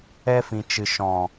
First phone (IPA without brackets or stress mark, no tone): ɛ